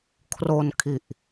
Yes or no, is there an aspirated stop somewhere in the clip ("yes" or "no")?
yes